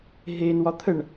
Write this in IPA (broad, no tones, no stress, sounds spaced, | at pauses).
ɦ e n w ɒ t̪ʰ ə ɳ